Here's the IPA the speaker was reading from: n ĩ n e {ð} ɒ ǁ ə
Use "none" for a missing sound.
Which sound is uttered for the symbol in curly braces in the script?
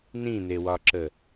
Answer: w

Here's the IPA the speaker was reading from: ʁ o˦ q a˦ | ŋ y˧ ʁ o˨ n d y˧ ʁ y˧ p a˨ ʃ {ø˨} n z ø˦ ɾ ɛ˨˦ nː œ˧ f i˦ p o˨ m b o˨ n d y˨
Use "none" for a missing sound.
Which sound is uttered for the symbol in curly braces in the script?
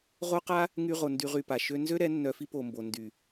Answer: ø˦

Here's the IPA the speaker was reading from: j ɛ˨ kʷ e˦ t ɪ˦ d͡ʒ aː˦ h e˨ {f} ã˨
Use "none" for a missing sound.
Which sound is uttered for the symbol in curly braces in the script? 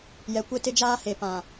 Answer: p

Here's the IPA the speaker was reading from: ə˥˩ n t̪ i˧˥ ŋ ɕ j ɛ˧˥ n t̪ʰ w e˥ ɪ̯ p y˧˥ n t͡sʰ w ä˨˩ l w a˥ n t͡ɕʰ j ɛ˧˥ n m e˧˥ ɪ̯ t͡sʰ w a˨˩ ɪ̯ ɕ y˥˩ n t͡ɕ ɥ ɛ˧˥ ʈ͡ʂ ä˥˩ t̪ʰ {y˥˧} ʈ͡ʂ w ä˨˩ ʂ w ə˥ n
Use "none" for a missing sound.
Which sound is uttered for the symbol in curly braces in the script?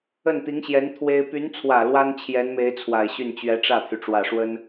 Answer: y˩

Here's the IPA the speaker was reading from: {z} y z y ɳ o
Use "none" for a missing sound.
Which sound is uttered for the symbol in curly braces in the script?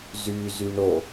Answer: z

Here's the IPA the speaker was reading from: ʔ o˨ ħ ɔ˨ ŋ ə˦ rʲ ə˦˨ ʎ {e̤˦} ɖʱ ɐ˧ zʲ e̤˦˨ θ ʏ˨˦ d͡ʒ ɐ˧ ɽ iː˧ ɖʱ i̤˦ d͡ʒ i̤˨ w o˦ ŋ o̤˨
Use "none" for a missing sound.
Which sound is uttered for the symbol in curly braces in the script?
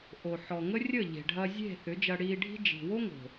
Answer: e̤˨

